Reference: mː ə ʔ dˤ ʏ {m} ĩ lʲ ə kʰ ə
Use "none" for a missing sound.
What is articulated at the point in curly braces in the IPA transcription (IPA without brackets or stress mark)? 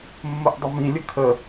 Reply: m